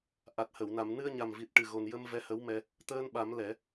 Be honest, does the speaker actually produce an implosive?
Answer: yes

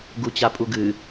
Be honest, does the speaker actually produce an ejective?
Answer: yes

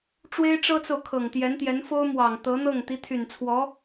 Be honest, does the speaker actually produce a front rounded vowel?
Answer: yes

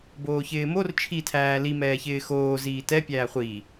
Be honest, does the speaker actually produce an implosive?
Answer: no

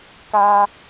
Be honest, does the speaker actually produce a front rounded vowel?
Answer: no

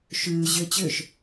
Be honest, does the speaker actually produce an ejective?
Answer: no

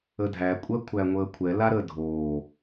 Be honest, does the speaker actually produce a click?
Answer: no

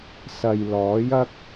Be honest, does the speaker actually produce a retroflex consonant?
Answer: no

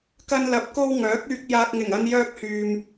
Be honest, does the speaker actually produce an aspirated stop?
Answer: no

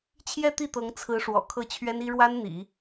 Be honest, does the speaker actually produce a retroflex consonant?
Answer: yes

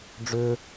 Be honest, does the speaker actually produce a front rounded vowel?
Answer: yes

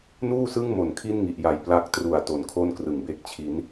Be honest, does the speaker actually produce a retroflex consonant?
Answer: no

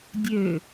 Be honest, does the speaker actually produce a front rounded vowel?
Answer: yes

